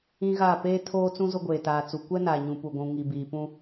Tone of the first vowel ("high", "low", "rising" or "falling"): high